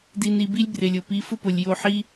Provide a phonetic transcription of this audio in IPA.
di˧ni˧bi˦lʲ brɪ˨lʲʊ˨pi˨˦ fʊ˦pʊ˨lʲjo˧ħi˦

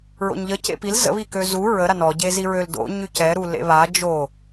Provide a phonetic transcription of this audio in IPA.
ɹo̰ɲʎə cḛpil zə̰βikø zu ɹəɾa nɔɟe ziɹøl do̰ ɲycɛɾu lḛβa d͡ʒo

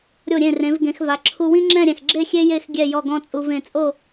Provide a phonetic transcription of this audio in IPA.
ɾʲo˧˩ɾʲẽ˧˩rẽ˩˧v ɡẽ˩˧xva˩˧ ǁʰu˧wĩ˥ŋ͡ǁɛ̃˥˧ ɾʲɛ̃˧˩xɡ͡ǁe˥˧ xʲe˥ je˥˧x ɡʲɛ˥˧jɔ˥˧ɡɔ̃˥ t͡sʼu˧vẽ˧t͡sʼo˥˧

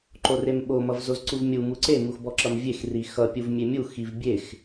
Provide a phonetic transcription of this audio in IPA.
ǃoremɓo mʌvzozǀuvmʲu muǀe muxbɔǁʌmvʲex rixʌ pʲuvmʲemʲu xivbʲex

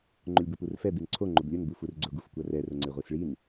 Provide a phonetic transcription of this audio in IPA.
ŋ͡ǃʊlʲbʊpurfɛ binǀʰo ŋ͡ǃʊblʲʊn bufurɡ͡ǀʊ ɡufkʷɐrɛ rʊŋ͡ǀɪʁʷisɭin

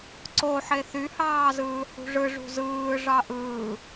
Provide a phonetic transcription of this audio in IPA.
ǀo ħeθyhɑːzɯː hṳʐɯ ʐṳzɯː ʐɑʔɯː

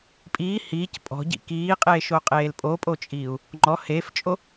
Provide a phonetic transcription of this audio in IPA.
pʼiː hiːc pʼɔ̤ɟḭ kiːqʼeːʃoqʼeːl pʼopʼot͡ʃʼiːu̯ | ŋ͡ǃɔ heːft͡ʃʼo

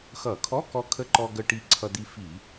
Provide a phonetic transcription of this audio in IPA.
xʌ˧˩˧ kʰɔ˧˥˧kɔ˧ kʰə˧˥˧ǃɔ˧ ɡə˧ ʈi˧ǀʰʌ˧d̪i˧ fi˧˩˧

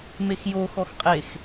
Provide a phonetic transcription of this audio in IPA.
mexjo xɔxqʼex

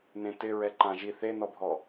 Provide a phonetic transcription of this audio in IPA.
nẽtɪɹɛ ǃãʒi θenɔbʱɔ

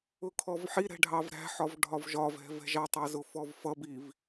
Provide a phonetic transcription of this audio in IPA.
ʊkʰɔvħiɾɛ̤ ɖʱɑvɾæ̤ħɒv ɖʱɒvʒɒvɛ̤vɛ̤ ʒɑtˤɑzʊ fɔvfʌbiv

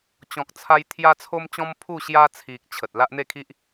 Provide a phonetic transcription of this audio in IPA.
t͡ɕɔ̃˨k̚t͡sʰa˧j t̪ʰja˦t͡sʰo˦mt͡ɕɔ̃˦m pʰu˥˧ɕja˦t͡sʰi˨k̚ t͡ɕʰə˨t̚ la˦ʔn̪e˥˧kʰi˦ʔ

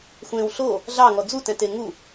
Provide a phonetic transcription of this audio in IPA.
xʷẽw ɬo | ɮɑŋɔ d͡zutɛ̃te ŋu

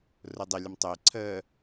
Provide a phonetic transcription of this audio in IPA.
rʊdˤɪlʲəm tˤʊɪ̯ ǀʰə

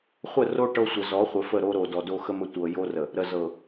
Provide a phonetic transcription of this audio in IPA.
χʷə˦˨ro˦ ʈɤ˦sʷə˨ zɔ˨˦χʷə˨fə˦˨ ɾo˦ɾo˨dɔ˨do˦ xə˦mə˦ tʷɤ˨ jo˦rə˨ | ɾə˨zɤ˨

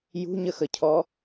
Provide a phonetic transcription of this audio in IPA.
jṳɲəxəcʰɔ

